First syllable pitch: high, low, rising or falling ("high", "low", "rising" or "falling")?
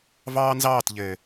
high